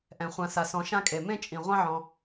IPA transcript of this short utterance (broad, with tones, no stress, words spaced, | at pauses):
ʔɛ̃˩χʷã˨sa˩sɔ̃˨ ʃã˦kʼe˩mẽ˥t͡ʃʼĩ˩ ʁʷã˦ʕɔ̃˩